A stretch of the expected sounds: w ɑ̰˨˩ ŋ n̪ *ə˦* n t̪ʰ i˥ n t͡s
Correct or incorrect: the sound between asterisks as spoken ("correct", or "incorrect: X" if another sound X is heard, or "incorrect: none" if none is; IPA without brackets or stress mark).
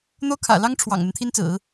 correct